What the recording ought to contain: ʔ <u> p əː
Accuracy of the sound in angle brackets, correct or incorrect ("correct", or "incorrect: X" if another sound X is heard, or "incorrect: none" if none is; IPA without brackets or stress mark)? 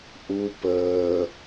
correct